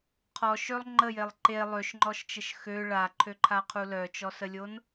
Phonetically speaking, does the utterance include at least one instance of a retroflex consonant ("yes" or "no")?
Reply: yes